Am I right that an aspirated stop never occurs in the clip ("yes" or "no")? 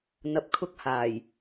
no